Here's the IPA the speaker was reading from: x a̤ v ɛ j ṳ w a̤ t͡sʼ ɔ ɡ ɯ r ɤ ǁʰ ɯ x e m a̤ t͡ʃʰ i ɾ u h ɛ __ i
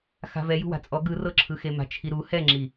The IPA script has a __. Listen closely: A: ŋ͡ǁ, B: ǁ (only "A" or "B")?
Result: A